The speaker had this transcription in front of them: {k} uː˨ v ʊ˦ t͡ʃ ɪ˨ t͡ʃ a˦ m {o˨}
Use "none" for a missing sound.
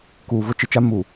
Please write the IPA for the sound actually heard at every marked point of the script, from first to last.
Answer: k, u˨

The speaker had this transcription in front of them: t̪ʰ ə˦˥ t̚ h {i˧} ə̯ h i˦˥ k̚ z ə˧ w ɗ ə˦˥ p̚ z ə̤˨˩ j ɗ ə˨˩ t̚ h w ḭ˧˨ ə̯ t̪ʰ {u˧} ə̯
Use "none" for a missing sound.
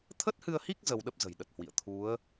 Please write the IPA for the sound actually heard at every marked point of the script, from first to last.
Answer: ɨ˧, u˨˦

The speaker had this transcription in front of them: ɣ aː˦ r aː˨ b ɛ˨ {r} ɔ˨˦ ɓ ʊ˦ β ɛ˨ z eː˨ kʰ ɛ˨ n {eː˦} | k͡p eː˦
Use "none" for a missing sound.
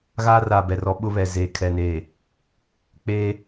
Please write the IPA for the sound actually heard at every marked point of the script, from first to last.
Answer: r, eː˨

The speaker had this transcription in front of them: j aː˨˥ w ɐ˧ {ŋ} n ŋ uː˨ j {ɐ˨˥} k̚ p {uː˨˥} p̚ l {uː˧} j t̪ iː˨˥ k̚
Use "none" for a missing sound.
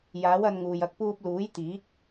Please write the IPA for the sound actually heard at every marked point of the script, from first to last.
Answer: none, ɐ˧, uː˧, uː˨˥

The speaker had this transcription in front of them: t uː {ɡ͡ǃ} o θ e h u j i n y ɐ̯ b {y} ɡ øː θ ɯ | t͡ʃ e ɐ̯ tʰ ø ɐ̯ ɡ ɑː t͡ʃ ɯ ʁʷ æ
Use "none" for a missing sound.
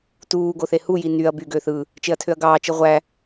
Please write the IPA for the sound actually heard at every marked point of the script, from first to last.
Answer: ɡ, y

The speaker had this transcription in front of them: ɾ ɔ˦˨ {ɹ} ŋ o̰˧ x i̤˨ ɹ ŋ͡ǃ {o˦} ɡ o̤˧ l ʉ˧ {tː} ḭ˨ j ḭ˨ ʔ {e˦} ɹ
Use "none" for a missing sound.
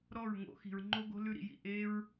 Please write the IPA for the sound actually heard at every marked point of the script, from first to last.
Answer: ɹ, o˦, ɾ, e˧

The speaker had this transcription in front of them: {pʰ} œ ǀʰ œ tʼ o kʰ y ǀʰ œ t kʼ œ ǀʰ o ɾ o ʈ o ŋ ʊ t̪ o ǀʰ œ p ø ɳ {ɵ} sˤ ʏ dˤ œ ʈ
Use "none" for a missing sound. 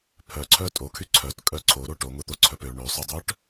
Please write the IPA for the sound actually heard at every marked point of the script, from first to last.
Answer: pʰ, ø

